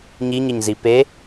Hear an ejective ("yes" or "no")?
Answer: no